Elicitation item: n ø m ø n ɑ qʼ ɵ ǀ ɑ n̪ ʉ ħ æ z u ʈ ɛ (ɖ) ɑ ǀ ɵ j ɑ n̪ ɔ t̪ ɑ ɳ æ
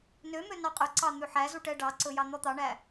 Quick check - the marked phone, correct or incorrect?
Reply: correct